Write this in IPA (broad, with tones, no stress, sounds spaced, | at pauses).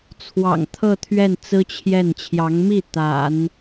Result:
t͡sʰ w ɑ̰˨˩ ŋ t̪ʰ ɤ˥˧ t̪ʰ ɥ ɛ˥˩ n t͡s ɹ̩˥ t͡ɕʰ j ɛ˥˩ n t͡ɕʰ j ɑ˧˥ ŋ m i˥˩ t̪ a̰˨˩˦ n